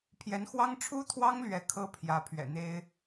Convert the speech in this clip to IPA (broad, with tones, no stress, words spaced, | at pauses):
pʰjɛ˧˥nxwɑ˥ŋ ʈ͡ʂʰu˥t̪ʰwɑ˥ŋlɥɛ˧˥ kʰɤ˥pʰjä˧˥ pʰɥɛ̰˨˩n̪e˥ɪ̯